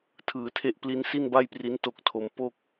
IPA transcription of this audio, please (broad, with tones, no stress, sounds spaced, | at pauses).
tʰ ɯː˩˦ tʰ e˦˥ ʔ p l i˦˥ n s i˥˩ n b a˥˩ j p r i˦˥ n t o˦˥ k̚ tʰ o˧ m p o˥˩ k̚